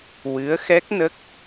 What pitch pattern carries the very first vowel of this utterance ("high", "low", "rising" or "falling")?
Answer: rising